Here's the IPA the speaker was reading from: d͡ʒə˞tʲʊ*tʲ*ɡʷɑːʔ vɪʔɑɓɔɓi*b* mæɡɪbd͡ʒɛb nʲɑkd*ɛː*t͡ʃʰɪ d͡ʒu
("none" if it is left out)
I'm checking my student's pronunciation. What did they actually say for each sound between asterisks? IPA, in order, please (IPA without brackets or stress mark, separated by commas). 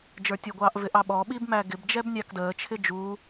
none, b, əː